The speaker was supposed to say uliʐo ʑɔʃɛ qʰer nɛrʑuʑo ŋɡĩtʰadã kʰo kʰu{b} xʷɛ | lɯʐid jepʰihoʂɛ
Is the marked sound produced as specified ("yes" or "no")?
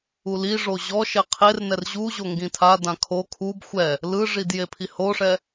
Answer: yes